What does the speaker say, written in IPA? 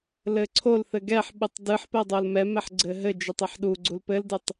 l ɘ ǀʰ o l θ ɘ ɡ ɛ ħ ɓ ɨ tˤ d ɨ ħ p ɛ dˤ o l m ɛ m ɛ ħ ɡ͡ǀ ɘ ɦ ɘ d͡ʒ ɨ tˤ i ħ ɗ u ɡ͡ǀ u l p ɘ l d ɨ tˤ

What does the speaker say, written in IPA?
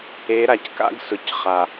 e˨˦ ɾ a˨ c k a̰˦ ɡ s ʊ˨ c χ a˨

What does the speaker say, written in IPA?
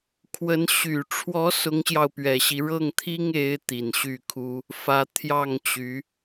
kʰ w ə˧˥ n ɕ y˨˩ ʈ͡ʂʰ w ɔ˧˥ s ʊ˧˥ ŋ ɕ j ɑ˧ ʊ̯ p ɥ ɛ˨˩ ɕ i˦ ɻ ɤ˥˩ ŋ t̪ʰ i˥ ŋ e˧˥ ɪ̯ t̪ i˨˩ n ɕ y˥˩ kʰ u˥ | f ä˧˥ t̪ʰ j ɑ˥˩ ŋ t͡ɕ y˧˥

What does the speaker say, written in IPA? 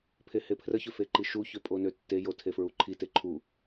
pʰ e h e pʰ r ə ç ø f e ǃ i ʃ u ç ø pʼ o n ø tː e j o tʰ e f ɹ u ǃʰ i t e ǃʰ u

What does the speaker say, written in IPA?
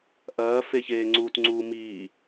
ʔ ɐː f e ç eː ŋ͡ǀ uː t ŋ͡ǀ uː m iː

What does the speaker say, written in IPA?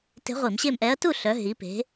t e̤˧˥ ʁʷ i˧˩˧ m ɕ e˥˨ m ʔ ɛ˧˥ ɐ̯ t u˥˨ ɬ œ˩˧ ɦ i˩˧ p e̤˩˧

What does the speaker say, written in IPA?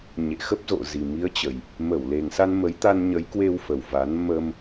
ɲ ḛ˧˨ x ə˦˥ p̚ z o̰˧˨ z i˨˩ m i˨˦ ə̯ t͡ɕ ə˨˩ j | m ə˧˩ w l e˨˩ ŋ s a˧ n m ə˨˦ j t̪ a˧ n ɲ ə˨˦ j k w e˧ w f ə˨˩ w v a˨˦ n m ə˧ m

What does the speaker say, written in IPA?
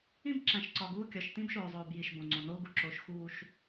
ĩ˦ b ǁ æ̃˨ ʃ ǀ ɒ˨ ɡ uː˦˨ kʲ ɒ˨ ʃ t ĩ˦ b ʃ oː˨ zˤ oː˨ b j i˨ ʃ b õ˨ ŋ͡ǀ õ˨ n oː˦ ɡ u˨ ǁ oː˨ ʃ x uː˨ ʃ

